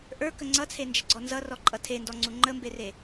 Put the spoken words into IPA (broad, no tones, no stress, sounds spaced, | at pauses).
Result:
ʔ ə˞ k ə ŋ͡ǀ ʌ t͡sʰ e n d͡ʒ ə ɡ͡ǀ ɔ n z ʌ r ɔ ǃʼ ʌ tʰ e n d ɔ ŋ͡ǀ u ŋ͡ǃ ə m b e r e